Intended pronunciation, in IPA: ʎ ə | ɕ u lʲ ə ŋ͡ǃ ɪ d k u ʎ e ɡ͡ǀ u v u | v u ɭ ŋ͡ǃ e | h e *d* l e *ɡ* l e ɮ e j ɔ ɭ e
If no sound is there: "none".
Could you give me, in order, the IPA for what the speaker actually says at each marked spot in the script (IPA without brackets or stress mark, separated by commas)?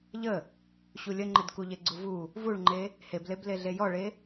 b, b